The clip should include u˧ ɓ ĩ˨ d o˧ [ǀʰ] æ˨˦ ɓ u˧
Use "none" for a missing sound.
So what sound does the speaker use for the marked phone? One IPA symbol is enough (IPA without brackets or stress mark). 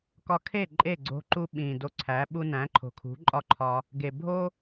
ǀʰ